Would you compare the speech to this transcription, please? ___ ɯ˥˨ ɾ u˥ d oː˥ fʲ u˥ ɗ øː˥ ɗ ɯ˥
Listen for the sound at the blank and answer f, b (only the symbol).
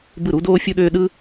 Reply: b